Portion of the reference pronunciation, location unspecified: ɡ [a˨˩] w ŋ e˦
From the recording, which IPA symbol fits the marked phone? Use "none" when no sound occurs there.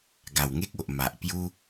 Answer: a˨˩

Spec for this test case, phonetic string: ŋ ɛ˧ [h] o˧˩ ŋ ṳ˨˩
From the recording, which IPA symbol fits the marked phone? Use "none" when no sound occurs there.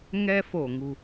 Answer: f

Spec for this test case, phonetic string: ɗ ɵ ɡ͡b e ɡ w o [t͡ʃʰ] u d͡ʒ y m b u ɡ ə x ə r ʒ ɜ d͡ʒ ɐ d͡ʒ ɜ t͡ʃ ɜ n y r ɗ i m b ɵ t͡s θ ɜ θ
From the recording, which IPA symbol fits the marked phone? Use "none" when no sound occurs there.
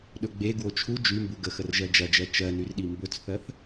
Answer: t͡ʃʰ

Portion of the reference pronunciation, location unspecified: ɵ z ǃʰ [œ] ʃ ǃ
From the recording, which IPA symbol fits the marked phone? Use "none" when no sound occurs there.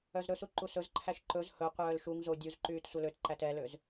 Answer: æ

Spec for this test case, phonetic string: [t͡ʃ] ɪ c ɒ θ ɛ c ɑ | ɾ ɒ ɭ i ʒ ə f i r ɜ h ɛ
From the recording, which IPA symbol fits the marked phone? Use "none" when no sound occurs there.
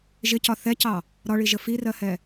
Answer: ʒ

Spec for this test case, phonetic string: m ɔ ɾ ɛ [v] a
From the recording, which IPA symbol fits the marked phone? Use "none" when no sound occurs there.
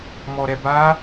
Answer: b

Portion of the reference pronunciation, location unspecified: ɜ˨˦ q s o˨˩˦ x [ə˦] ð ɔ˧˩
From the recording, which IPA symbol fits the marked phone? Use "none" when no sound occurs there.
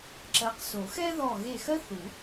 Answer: ɛ˦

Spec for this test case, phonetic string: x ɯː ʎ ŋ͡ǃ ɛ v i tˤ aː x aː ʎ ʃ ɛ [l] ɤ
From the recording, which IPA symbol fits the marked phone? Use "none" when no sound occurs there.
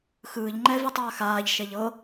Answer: ʎ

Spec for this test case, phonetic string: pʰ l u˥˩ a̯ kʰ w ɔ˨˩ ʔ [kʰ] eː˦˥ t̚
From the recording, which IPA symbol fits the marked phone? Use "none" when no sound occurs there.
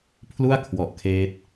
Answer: kʰ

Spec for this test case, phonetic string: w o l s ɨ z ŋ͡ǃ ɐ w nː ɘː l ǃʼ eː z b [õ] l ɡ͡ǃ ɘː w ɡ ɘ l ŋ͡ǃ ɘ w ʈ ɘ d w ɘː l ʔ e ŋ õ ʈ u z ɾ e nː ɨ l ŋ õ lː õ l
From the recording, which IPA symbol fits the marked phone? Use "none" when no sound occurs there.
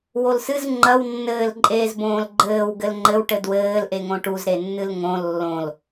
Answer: õː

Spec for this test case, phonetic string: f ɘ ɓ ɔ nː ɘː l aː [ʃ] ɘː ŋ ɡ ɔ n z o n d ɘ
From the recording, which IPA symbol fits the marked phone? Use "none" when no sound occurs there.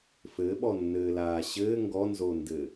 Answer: ɕ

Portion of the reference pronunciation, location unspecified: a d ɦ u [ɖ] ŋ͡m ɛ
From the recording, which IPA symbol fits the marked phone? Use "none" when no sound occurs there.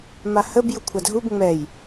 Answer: b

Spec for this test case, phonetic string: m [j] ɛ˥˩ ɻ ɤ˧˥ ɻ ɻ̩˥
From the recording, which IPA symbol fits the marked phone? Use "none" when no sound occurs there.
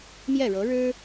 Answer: j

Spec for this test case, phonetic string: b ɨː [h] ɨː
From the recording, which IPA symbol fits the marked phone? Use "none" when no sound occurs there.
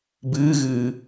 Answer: ɣ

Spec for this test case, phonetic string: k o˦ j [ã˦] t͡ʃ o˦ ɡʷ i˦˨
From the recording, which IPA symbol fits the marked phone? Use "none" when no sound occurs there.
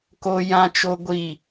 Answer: ã˦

